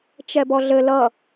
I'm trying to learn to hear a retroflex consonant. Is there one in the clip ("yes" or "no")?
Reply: no